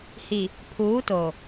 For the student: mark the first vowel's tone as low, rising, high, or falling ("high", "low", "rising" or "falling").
low